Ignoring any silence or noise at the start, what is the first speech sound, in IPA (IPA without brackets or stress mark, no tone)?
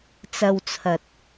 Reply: t͡s